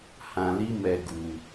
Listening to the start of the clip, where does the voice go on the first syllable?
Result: low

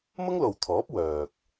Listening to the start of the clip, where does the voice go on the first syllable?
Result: high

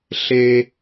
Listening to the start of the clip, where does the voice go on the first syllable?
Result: high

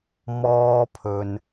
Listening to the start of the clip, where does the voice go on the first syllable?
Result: high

